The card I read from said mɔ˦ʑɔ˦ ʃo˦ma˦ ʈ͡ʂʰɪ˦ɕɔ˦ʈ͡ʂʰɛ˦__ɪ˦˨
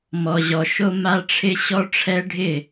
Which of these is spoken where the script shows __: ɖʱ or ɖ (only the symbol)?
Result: ɖʱ